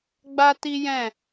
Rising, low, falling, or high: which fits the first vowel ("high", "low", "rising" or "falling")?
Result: high